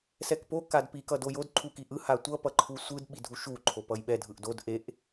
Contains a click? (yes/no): yes